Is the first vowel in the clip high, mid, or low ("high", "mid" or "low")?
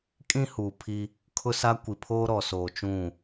high